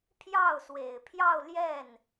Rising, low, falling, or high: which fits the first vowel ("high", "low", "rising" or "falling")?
falling